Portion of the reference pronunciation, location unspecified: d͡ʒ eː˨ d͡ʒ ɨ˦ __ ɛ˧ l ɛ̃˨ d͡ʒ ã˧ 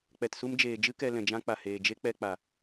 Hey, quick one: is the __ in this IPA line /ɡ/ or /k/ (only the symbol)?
k